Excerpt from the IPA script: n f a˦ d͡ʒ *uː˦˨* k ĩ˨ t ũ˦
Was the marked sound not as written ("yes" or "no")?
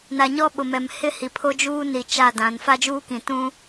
yes